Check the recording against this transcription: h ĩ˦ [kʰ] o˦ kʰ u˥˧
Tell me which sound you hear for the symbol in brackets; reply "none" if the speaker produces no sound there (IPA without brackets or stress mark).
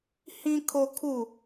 kʰ